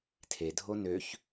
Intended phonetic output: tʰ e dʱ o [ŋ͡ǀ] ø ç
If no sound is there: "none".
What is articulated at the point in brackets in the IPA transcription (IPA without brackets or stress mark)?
n